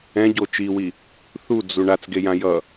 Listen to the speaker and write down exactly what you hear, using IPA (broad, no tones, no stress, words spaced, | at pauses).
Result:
ɛ̃ɟo t͡ʃiwi | θud͡zu ɳat͡sɡejã jʌ